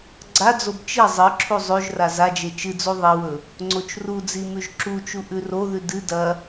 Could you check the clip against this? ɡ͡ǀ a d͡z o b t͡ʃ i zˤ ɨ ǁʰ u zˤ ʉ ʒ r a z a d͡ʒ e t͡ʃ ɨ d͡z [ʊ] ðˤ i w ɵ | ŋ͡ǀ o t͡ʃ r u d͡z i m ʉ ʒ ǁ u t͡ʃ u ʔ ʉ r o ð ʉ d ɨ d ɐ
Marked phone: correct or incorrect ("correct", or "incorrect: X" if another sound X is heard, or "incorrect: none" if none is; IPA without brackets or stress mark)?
incorrect: u